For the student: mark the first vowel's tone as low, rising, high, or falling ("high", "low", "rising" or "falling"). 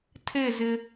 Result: falling